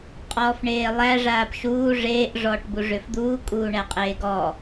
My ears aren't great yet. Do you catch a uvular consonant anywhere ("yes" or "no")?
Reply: yes